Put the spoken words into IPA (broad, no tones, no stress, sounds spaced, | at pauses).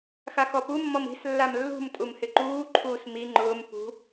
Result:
x a x ɔ p u mː ɔ m i̤ s lː a m lː ṳ m tʼ u m h ɪ ǃ uː ǃʰ uː s m i ŋ͡ǃ ʊː m p ṳ